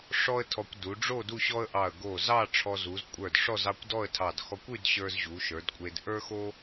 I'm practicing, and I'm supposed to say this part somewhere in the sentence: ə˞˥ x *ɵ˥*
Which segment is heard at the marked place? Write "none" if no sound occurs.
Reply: o˥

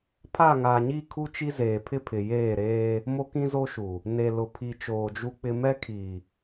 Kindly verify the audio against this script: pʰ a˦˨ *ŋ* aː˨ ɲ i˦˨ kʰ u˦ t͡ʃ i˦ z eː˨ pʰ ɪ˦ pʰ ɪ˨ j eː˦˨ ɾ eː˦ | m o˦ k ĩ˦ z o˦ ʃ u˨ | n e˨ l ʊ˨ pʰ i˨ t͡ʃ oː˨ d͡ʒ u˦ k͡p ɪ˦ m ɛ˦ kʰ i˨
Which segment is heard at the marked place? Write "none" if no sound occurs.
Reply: ŋ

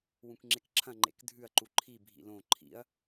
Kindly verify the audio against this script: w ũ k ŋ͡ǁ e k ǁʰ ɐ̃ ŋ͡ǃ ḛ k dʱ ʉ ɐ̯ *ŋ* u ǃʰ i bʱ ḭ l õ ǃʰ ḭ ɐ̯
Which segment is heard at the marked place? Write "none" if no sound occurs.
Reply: ǃ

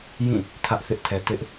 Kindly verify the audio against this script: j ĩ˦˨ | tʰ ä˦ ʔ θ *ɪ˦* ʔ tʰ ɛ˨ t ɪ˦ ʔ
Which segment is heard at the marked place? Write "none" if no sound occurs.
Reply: ɪ˦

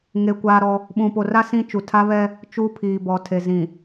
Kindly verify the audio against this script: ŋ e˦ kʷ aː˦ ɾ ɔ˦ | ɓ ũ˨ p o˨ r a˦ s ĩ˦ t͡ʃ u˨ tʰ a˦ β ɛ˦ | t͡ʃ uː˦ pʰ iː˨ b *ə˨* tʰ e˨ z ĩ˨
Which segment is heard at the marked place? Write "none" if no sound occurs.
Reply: ɔ˨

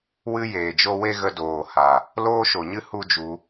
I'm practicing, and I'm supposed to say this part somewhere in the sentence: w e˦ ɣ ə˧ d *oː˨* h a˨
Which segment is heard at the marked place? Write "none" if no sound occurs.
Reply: oː˨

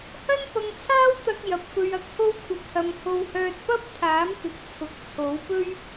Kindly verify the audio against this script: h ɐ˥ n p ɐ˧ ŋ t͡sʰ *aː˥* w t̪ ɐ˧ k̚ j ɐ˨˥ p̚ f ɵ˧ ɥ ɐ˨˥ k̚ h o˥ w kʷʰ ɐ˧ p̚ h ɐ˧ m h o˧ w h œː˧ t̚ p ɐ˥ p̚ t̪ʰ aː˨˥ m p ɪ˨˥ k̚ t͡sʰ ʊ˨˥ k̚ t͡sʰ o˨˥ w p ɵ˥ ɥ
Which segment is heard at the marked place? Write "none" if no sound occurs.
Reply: aː˥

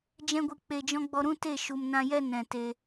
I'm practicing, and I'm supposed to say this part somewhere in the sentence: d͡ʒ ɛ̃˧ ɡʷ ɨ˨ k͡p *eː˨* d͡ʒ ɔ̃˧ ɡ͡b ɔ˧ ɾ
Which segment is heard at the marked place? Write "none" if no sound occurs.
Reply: e˨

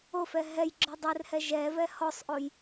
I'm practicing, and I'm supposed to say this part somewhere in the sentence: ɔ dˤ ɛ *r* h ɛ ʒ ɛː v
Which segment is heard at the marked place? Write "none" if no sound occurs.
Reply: r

